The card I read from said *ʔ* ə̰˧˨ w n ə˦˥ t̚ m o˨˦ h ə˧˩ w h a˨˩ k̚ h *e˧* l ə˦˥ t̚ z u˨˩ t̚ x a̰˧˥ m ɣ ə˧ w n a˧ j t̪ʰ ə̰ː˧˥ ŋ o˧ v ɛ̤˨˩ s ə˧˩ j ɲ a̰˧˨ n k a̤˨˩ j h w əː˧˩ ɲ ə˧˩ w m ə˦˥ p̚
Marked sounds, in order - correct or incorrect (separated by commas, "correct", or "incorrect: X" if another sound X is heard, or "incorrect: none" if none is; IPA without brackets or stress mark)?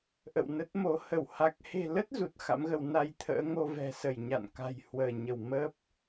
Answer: correct, incorrect: e̤˨˩